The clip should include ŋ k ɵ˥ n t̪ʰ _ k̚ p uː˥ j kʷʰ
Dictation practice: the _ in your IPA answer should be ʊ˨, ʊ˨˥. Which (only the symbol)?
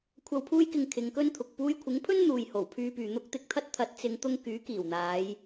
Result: ʊ˨